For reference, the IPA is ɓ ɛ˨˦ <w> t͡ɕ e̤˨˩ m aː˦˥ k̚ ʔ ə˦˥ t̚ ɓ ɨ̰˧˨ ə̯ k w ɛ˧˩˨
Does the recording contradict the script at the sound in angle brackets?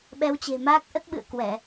no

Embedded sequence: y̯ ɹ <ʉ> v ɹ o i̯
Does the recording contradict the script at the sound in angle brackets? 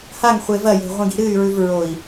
no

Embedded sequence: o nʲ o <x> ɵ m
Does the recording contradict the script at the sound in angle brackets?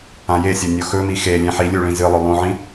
no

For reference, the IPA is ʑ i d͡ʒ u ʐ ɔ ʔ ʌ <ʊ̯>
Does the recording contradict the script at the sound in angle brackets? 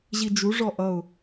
no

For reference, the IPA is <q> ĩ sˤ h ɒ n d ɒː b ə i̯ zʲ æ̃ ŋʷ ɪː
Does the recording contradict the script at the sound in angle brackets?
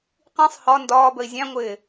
no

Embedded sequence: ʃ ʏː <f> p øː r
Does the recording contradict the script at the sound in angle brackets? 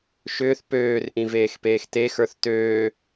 yes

